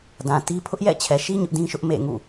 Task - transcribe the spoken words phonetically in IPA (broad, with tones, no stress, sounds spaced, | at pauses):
d ã˨ t i˦ pʰ ʊ˦ ʔ j ɛ̰˦˨ t͡ɕʰ ɛ˨ ʃ i˦ ɲ ʊ˦ ʔ d ĩ˦ ʃ ʊ˦ ʔ m ḛ˦˨ ŋ ṵ˦˨